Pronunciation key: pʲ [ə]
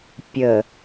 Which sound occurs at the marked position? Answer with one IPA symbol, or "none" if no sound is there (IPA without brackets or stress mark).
ə